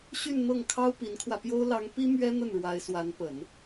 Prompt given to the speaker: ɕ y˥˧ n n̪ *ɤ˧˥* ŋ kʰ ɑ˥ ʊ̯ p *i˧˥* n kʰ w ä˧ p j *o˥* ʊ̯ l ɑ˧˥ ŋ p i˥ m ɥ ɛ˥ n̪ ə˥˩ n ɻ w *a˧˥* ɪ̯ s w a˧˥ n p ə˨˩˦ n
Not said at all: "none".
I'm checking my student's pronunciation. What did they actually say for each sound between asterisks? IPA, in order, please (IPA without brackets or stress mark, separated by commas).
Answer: ɤ˥˩, i˧˥, o˥, a˧˥